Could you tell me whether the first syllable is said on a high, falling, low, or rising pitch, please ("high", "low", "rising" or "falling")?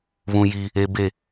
high